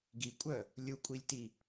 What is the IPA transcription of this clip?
ɡ i kʷʼ œ | lʲ u kʷʼ i lʲ t i

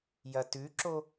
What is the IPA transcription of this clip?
j ɐ t ʉ ǁ o

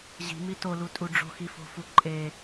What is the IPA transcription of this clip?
ʑ i̤ m i t o l u tʼ u ɖ͡ʐ o̤ x i f o̤ f u ǃʼ e

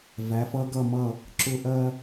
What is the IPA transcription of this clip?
v æ˩˧ f ʌ˧ ɡ ʌ˧˩ m ʌ˧˩ | ǁ ʊ˧˩ ʔ ɜ˧

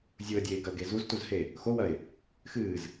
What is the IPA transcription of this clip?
zʲ u ə̯ dʲ eː ɡ ɐ ʊ̯ ɡ e z u z t u z h e | x o w ɐ ɪ̯ | x ɨː z

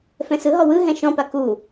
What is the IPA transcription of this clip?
f ɛ̃ s ɯ ɦ ɔ w ɯ ɦ ɛ̃ ʃ ɔ̃ p a k u

